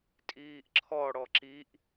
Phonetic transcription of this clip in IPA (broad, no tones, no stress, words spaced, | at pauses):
tʼiːʔǁʰɔ ɽɔǁiʔ